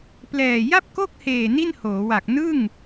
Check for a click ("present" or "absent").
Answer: absent